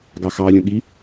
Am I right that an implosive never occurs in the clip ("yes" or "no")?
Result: no